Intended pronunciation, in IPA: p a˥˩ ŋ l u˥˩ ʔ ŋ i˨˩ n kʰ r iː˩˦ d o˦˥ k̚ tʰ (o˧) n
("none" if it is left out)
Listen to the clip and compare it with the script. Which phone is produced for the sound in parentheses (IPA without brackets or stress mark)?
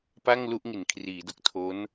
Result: o˦˥